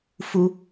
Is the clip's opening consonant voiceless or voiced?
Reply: voiceless